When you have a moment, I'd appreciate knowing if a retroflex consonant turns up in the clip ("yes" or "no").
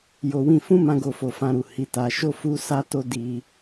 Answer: no